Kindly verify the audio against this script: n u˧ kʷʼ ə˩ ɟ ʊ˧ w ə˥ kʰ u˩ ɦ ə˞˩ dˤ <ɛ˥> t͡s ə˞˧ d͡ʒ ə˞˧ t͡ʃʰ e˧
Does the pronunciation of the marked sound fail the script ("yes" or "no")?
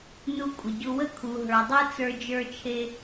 no